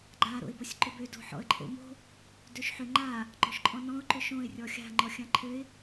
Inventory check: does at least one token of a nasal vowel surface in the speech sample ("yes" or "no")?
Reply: yes